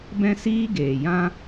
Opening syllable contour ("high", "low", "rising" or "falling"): high